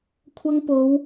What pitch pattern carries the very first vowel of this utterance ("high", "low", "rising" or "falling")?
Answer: high